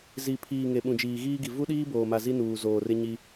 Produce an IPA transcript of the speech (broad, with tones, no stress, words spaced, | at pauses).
zi˨pʰiː˨ ŋe˨ɓũ˨d͡ʒiː˨ɣiː˦ ɡi˨ vu˦ɗiː˦boː˨ma˨ zi˦nuː˨zoː˨rɪ˦ ɲi˦